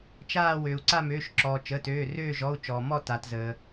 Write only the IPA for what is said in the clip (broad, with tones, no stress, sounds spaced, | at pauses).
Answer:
t͡ʃ aː˦˨ w øː˩ u̯ ǀ a˦˨ m øː˩˧˩ ʃ ǁ ɔː˩ t͡ʃ əː˩˧˩ t øː˩˧˩ r øː˦˨ ʒ ɔ˩˧˩ u̯ t͡ʃ ɔː˩ m ɔ˦˨ t aː˩ t z əː˩